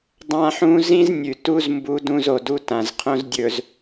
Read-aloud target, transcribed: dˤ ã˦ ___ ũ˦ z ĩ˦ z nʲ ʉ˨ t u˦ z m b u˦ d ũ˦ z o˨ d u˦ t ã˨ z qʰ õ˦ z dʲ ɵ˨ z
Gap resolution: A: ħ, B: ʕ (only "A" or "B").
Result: A